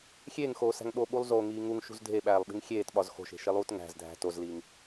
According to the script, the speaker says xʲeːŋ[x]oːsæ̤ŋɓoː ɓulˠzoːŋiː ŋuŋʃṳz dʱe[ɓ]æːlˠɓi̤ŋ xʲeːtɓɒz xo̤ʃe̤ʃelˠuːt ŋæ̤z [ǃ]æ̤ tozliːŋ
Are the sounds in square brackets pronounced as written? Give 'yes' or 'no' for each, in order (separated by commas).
yes, yes, no